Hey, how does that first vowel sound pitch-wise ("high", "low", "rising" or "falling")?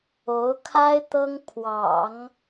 rising